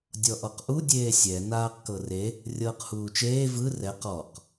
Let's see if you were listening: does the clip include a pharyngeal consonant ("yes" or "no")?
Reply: no